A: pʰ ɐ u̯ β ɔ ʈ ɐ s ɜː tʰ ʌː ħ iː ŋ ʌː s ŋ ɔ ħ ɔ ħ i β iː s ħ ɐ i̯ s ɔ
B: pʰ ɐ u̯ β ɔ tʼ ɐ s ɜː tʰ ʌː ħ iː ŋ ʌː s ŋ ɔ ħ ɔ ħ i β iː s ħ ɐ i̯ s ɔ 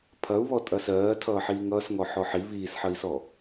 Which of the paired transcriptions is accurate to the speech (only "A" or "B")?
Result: B